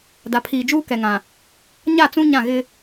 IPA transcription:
d a˨ pʰ iː˨ d͡ʒ uː˦ k ɛ˨ ŋ ã˨ | ɲ a˦˨ t͡s ũ˦ ɲ ã˦˨ ɣ ɪ˦

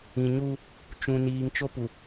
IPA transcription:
ĩ˨ ɲ u˦ | t͡ʃ ũ˨ n iː˨ ŋ t͡ʃ o˦ p u˨

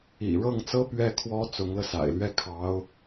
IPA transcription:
ḭ˨˩ ɻ ɤ˥˩ ŋ t͡s ɤ˥ p ɥ ɛ˥˩ kʰ w ɔ˥ t͡s ʊ˧˥ ŋ l ɤ˧ s a̰˨˩ ɪ̯ l ɥ ɛ˥˩ kʰ ɑ˧˥ ʊ̯

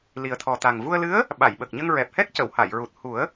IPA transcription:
l i˨˩ ə̯ t̪ʰ ɔ˨˩ t̪ a˨˩ ŋ v u˧ ə̯ l ɨ˧˥ ə̯ | ɓ a˨˩˨ j ɓ ə˨˩ k̚ ɲ ə˧ ŋ ɹ ɛ˨˩ p̚ h ɛ˦˥ k̚ c ə˨˩˨ w h a˨˩˨ j ɹ u˨˩ t̚ h u˨˩˦ ə̯

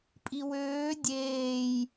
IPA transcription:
pʼ i w øː dʲ eː j

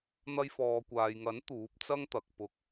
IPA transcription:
n̪ ɐ˧ j f ɔː˨ kʷ aː˨ j ŋ ɐ˨˥ n t̪ uː˨˥ p̚ t͡s ɐ˥ ŋ t̪ ɐ˨ k̚ p ʊ˧ k̚

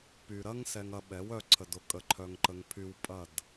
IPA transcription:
p y˨ ɾ ɐ˦ ŋ s ɛ˧ ŋ ɐ˧ ɓ ɛ˨˦ w œ˧ ǀʰ ə˨ d ʊ˦ kʼ ə˧ ǃʰ œ˧ ŋ ǃ ə˧ ŋ pʰ y˧ w pʼ ɐ˦˨ d

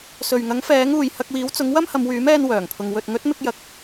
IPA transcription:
s ɵ˨ ɥ ŋ ɐ˨˥ ŋ f ɛː˨˥ ŋ uː˨ j h ɐ˧ k̚ w iː˨˥ w t͡s ʊ˨˥ ŋ w ɐ˥ m h ɐ˨˧ m w yː˨˥ m ɛː˧ n w œː˨˩ ŋ pʰ ʊ˨ ŋ w ɵ˨ t̚ ŋ ɵ˨˥ t̚ m ɪ˧ k̚ j ɐ˨ k̚

